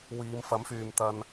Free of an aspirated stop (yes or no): yes